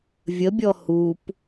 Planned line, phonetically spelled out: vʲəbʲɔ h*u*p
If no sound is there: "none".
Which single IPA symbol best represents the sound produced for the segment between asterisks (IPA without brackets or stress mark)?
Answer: u